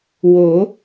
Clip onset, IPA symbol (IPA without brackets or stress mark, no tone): w